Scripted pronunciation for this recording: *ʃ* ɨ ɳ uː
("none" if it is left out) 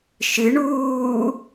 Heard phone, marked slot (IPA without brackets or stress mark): ʃ